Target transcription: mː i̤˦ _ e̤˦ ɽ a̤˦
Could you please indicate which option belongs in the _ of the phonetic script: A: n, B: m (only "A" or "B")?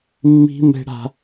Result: B